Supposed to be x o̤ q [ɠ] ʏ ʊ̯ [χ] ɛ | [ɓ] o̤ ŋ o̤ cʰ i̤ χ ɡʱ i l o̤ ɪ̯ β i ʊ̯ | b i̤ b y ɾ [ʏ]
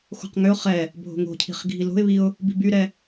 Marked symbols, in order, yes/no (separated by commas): no, yes, no, no